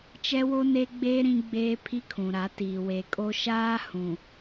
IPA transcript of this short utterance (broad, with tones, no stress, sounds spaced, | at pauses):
t͡ʃ ɛ˦ w o˦ n e˦ ɡ͡b e˦ ɾ ĩ˦ ɡ͡b eː˦ pʰ i˦ kʰ ũ˨ ɾ a˨˦ t iː˨ w e˨ kʼ o˦ ʃ aː˦ h ũ˨